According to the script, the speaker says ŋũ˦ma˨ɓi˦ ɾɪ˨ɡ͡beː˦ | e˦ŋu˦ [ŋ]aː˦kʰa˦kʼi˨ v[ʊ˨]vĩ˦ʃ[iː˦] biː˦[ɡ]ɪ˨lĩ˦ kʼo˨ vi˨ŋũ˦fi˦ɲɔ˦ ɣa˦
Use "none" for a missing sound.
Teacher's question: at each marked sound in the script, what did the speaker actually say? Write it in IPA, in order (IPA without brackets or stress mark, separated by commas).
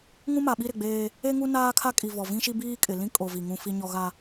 n, ɔ˨, i˦, kʼ